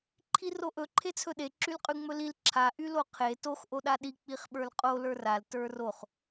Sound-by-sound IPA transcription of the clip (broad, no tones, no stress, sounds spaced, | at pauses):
ǃʰ i r o ʔ ɵ ǃʰ e t͡sʰ ɵ ɗ e ǁ y l qʼ y ŋ͡m ɵ l i l ǁʰ a ʔ y l o qʰ e t o x ʔ o ɗ a ɗ i k͡p i χ ɓ ə˞ l qʼ o l ə˞ r a l t ə˞ r o χ